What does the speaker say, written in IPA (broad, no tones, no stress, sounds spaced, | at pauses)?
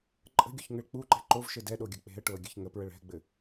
ǃʼ ə̤ ɡʲ o ç ŋ ɘ ɭ k͡p u ǃ ɛ̤ ǃ o v ʃ ɘ d ɛ ɗ o ɡʲ ɐ k͡p e̤ ə̯ ʈ o ə̯ ɡʲ ɘ ç ŋ ə p ɹ ə ɭ ɛ̤ ɡ͡b ɘ